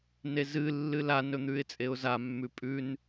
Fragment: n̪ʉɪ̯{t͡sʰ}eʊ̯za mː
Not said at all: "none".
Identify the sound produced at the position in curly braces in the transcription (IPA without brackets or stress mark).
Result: t͡sʼ